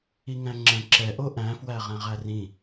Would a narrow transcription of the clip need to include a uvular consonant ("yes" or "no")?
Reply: yes